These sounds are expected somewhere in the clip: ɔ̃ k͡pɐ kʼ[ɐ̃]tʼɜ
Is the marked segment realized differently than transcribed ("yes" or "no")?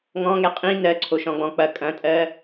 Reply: no